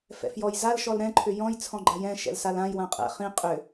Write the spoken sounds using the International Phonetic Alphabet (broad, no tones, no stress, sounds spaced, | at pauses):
f ɛ̰ f j ɔ j z a l ʃ ɔ l ɾ ɛ̃ ǃʰ ʏ j ɔ̃ j t͡sʰ ɔ̃ ɡ͡ǃ a j ɛ̃ ʃ ɛ̰ l s a l ã j w ã qʼ ɛ̰ χ ĩ qʼ ʏ